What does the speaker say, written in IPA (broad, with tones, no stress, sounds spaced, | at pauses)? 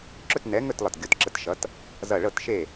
ǁ ɵ˥˨ t n ɛ˨˥ ŋ ɵ˥˨ t lˠ ʌ˧˩ t ɡʲ o˨˥ t ǁ ə˨˥ t ʃ ʌ˨˥ t | z ʌ˧˩ ɭ ɤ˥˨ t ʃ e˥˨